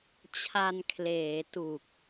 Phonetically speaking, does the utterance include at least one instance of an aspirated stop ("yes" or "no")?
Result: yes